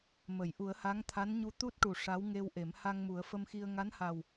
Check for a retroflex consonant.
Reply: present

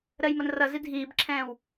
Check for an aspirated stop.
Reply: present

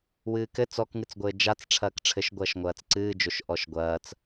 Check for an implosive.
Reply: absent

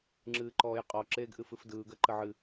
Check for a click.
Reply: present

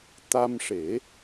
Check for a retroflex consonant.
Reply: present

